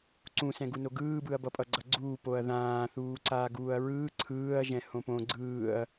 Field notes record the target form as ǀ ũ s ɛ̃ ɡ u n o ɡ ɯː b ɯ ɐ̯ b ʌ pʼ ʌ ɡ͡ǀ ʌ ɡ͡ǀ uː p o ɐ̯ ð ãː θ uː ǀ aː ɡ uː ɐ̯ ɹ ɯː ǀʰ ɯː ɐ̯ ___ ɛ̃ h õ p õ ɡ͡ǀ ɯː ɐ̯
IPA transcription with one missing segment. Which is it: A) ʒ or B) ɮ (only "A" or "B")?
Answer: A